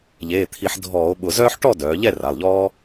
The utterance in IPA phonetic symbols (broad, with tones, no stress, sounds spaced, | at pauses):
ʎ eː˩˧˩ t̪ʰ i˧˩˧ ħ dʱ ɔː˧˩˧ o̯ ɓ ʊ˧˩˧ z œː˥ ħ ʈ ɔ˥˨ d œː˩˧ ʎ ɛ˥˨ r a˩˧˩ lˠ ʎ ɔː˥